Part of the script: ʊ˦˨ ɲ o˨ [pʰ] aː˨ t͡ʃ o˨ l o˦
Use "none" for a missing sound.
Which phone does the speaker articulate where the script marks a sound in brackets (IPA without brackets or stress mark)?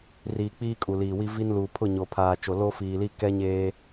pʰ